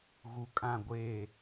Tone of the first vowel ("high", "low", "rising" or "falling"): low